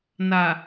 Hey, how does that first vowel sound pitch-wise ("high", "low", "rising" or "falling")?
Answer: low